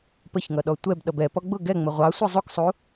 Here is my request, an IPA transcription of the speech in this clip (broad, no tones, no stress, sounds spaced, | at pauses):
p ə ç ŋ ʌ ɗ ɔ tʷ ɛ b ɗ ʌ b ɛ p ɔ ɡ͡b ʊ ɡ ɛ ŋ͡m ə ʁʷ ɑ sʷ i zˤ u k sˤ u